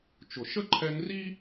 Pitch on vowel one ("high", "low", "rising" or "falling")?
low